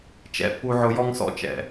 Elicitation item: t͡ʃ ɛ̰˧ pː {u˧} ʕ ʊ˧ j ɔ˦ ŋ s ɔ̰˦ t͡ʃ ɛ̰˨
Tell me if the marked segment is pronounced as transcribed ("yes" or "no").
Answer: yes